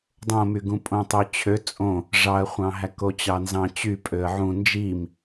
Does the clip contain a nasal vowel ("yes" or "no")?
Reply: yes